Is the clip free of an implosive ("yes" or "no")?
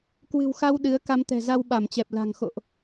no